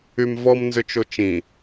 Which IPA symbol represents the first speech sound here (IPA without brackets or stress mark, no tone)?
y